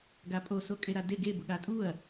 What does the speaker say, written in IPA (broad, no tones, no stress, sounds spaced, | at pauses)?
ɡ a pʼ o s o kʼ e ɾ a d e ɡ e b ʊ ɠ a tʼ u ɐ̯